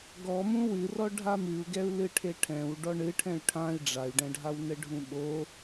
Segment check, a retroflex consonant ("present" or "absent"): present